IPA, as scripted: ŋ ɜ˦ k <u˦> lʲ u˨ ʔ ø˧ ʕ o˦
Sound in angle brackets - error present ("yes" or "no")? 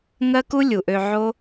no